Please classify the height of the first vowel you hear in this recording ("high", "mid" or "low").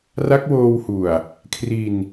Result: low